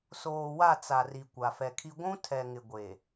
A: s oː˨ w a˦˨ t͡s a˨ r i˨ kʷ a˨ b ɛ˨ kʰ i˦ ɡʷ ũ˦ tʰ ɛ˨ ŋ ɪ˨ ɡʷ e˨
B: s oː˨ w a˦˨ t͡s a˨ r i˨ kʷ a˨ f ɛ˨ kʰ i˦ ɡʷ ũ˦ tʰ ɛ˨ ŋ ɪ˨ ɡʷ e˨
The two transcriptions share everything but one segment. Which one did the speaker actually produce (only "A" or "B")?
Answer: B